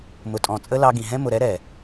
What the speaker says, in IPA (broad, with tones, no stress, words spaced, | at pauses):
mʊ˨tʼɔ̃˨ t͡sʼə˦lɑ˧ɡĩ˨ ɦɛ̃˦mʊ˨ ɾɛ˦ɾɛ˨